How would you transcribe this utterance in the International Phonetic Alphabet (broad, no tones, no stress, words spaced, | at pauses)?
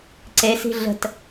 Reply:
ǀesi̤ ɮə̤t